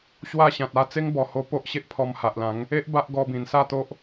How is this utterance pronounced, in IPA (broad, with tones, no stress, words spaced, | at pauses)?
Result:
ɕwa˥˧ɕã˨t̚a˥˧ t͡se˦ŋbɔ˨˩ ho˧po˦ʔɕe˦ʔ pʰɔ˧mha˨ʔlã˨˦ŋ | e˦ʔ ba˦ʔɡɔ˧ bĩ˨˩nsa˥˧t̪o˦ʔ